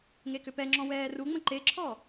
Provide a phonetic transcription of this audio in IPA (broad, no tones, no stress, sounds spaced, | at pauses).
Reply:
ŋ e k ʏ p ɛ ŋ͡ǁ ɔ̃ w ɛː r u ŋ͡m ə̃ ǃ e ǁʰ ɔ